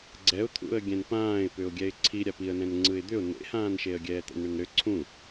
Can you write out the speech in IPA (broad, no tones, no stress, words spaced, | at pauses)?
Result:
ɡ͡ǀɛʊ̯t̪ʰṵə̯ɡʲɛ̃n pãːɪ̯pʏʊ̯ɡʲɛɪ̯ ǀʰi ɾʲapiə̯ nɛ̃nŋ͡ǀɯɪ̯d̪ʏʊ̯ nḛhãːnʃeə̯ ɡʲɛːt̪ɛ̰nɳʏnɾʏ ǀʰũ